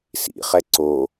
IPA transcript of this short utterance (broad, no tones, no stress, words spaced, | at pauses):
sḭχɛ ǀo